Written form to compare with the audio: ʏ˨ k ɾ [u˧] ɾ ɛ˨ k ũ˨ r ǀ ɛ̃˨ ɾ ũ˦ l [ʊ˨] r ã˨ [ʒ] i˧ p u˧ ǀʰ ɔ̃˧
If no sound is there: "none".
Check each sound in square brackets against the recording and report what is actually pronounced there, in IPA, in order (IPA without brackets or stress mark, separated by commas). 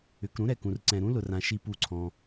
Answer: ũ˧, ʊ˨, ʃ